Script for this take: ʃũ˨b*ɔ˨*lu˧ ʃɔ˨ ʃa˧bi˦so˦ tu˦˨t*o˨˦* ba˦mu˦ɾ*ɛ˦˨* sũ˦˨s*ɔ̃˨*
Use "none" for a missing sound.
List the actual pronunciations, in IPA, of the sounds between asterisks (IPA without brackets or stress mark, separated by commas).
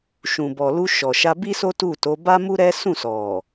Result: ɔ˨, o˨˦, ɛ˦, ɔ˨